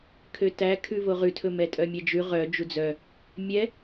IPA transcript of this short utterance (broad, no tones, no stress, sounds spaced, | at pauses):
kʰ ø t æ kʰ ʉ v o ʁ ʉ tʰ ɵ m ɛ tʼ œ mʲ ɛ d͡ʒ ʉ ʁ œ d͡ʒ u d͡z œ | mʲ ɛ